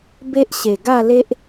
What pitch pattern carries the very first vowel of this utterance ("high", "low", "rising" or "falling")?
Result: high